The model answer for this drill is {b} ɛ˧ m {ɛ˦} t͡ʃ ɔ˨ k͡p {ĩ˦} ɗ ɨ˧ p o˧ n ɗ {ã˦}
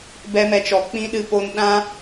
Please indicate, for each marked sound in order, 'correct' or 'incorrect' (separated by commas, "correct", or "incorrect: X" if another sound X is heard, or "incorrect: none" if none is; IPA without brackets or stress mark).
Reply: correct, incorrect: ɛ˨, correct, correct